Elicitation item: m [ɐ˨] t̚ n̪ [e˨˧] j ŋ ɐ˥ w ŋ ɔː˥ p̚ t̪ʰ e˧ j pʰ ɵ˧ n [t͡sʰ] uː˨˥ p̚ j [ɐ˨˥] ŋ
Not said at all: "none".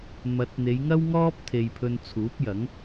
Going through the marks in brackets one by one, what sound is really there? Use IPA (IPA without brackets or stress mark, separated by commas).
ɐ˨˥, e˨˧, t͡sʰ, ɐ˨˥